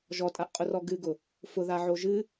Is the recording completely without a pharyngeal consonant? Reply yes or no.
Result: no